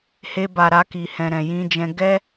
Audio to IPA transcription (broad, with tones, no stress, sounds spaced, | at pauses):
h e˧ b a˨ ɾ a˧ k i˨ h ɛ̃˨ ɾ ɛ̃˨ j ĩ˧ d͡ʒ ɛ̃˧ ɡ ɛ˦